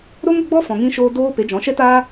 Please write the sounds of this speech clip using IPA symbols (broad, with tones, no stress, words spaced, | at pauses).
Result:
ɾo˦ŋə˧ɡ͡bɔ˦fɔ̃˨ ŋĩ˧ʃoː˧ doː˧ pe˨˦d͡ʒɔ̃˨˦ʃɛ˦taː˦